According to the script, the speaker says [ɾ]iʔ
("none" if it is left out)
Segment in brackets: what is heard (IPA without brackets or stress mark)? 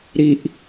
ɾ